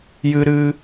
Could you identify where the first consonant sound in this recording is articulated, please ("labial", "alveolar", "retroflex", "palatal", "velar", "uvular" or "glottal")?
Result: palatal